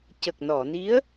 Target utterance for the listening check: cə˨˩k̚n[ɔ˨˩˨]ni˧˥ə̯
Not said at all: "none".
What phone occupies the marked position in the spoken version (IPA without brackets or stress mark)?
ɔ˨˩˨